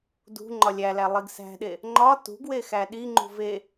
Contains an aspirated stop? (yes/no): no